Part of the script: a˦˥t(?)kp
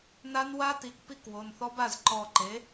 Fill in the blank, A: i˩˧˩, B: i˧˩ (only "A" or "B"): A